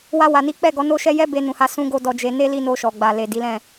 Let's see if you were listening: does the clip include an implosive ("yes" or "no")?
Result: no